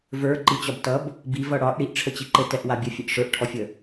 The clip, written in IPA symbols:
və˞ ǃit͡ɕɒbtʌb | bi vʌɽɒʔ ɽiʔʈ͡ʂʰət͡ɕi ǃɘtɛʔ wabʲɘfʲɘʔ ʂə˞ʔʈʰɔfʲə

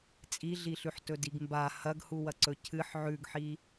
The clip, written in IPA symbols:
t͡sʼiɮiɬʉħ tɵdiɡmba hɐɡhuwɐǀɵ cʰɨħ ʕʉɡħi

